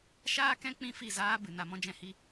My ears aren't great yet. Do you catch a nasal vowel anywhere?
yes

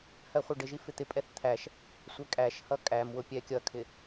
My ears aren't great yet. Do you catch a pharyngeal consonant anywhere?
no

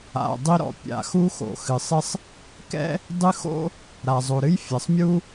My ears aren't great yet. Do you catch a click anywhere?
no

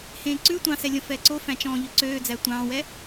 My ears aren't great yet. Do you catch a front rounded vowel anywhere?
yes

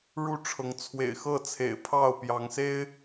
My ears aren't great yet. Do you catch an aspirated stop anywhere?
yes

